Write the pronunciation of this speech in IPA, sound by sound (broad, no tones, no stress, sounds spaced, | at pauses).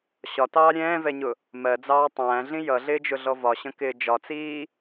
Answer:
ɕ ɒ t ɑː ɾʲ ɛ̃ː v ɛ ɲ ʊ | m ɜ d͡z ɑː tˤ æ̃ː ɮ ĩ j ʌ ɮ ɪː d͡ʒ ʊ ɮ ɔ v ɒ ɕ ə̃ k ɪː d͡ʒ ɒ t͡s iː